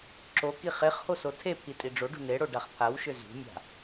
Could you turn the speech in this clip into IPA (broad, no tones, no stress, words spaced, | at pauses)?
ǁoki χeχho sotʰepʰi tʼiɖ͡ʐoɖṳ neɽo ɖaχpʰawʃʏ zṳmʲa̤